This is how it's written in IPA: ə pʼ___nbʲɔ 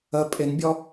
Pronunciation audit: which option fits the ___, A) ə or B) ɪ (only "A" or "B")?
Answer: B